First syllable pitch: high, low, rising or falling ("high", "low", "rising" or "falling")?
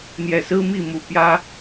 low